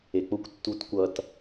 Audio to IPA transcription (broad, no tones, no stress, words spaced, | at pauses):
ek͡pʊkʷ tːutkʷʌt